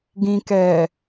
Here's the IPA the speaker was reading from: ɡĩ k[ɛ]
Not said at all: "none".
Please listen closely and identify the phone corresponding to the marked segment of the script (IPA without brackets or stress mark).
ɛ